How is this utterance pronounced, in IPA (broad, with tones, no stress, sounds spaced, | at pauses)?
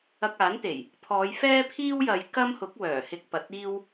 ɐ˧ k̚ aː˨˥ n t̪ e˨˩ j | pʰ ɔː˨˧ j f ɛː˥ pʰ iː˥ w j ɐ˨˧ j k ɐ˥ m h ʊ˨˥ k̚ w œː˨˩ h ɪ˧ k̚ p ɐ˨ t̚ iː˥ w